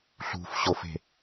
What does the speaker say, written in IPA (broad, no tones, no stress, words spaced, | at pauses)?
ɬṳfɕofe̤